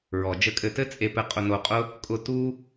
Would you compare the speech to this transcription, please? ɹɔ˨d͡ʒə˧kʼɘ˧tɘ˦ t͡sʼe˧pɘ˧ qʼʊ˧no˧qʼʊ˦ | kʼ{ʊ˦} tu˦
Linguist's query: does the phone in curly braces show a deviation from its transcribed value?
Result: yes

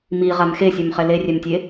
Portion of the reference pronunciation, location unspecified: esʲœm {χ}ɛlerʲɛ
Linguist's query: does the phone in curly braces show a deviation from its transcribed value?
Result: no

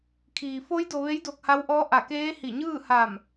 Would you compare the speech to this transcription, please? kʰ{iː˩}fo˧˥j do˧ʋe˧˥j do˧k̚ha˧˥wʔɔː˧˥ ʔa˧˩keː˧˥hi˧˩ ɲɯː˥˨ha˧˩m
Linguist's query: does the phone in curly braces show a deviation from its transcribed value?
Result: no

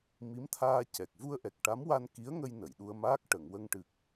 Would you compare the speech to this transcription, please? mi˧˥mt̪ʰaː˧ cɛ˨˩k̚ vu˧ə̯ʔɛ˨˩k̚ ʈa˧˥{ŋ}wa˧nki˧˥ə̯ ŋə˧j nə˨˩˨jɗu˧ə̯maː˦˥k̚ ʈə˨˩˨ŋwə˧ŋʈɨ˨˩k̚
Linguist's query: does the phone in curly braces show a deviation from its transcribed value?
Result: yes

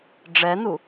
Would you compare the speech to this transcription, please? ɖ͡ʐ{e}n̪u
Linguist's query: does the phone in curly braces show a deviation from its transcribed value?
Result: yes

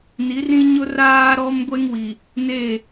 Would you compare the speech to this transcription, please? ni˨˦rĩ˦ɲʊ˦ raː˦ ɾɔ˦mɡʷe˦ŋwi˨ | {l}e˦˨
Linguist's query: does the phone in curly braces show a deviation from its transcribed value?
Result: yes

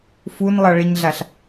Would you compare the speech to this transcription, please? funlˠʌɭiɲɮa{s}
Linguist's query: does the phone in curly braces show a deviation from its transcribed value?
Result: yes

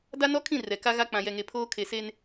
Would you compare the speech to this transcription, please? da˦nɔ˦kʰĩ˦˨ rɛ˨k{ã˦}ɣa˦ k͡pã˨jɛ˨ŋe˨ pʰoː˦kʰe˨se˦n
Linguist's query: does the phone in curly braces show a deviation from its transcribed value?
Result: yes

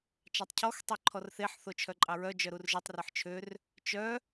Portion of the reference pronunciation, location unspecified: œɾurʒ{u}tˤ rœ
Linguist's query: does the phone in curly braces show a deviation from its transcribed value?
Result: yes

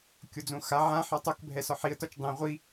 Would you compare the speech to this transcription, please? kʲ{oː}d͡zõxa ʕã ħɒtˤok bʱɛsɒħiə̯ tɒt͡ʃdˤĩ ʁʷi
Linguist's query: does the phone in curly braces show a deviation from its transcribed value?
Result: yes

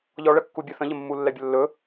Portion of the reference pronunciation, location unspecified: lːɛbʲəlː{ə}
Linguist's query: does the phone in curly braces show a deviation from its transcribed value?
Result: yes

